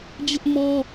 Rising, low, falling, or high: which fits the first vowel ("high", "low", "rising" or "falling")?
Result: high